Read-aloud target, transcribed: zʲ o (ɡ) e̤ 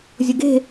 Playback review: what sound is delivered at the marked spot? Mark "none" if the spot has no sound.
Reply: ɡ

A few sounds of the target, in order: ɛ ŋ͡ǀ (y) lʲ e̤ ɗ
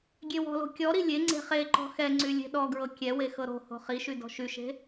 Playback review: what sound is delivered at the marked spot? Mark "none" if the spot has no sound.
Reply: y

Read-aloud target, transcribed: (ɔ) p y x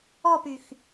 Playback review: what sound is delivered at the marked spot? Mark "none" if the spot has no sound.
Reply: ɔ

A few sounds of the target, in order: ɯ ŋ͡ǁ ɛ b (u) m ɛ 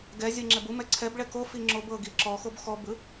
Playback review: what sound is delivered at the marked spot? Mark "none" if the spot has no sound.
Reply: u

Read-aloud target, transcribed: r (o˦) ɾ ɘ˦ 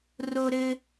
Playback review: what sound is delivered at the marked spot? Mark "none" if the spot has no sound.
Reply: o˦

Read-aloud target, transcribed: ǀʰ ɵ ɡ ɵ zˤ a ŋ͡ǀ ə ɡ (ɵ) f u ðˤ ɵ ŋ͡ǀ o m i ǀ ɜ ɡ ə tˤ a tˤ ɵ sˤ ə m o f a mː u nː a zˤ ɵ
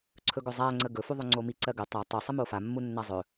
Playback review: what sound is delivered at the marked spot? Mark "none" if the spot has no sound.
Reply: ɵ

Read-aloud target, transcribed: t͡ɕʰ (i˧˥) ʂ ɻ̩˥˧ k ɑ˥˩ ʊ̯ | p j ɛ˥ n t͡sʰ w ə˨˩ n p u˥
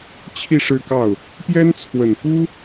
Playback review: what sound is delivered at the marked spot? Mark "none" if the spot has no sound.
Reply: i˥˧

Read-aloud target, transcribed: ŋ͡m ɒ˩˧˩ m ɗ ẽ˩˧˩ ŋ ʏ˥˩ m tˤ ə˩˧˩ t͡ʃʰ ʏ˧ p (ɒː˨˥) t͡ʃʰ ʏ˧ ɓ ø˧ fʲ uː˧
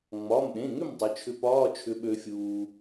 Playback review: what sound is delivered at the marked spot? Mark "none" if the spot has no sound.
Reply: ɒː˧˥˧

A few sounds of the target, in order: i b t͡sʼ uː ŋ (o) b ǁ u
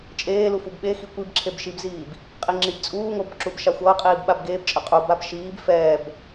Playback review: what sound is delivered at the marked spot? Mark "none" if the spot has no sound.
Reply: o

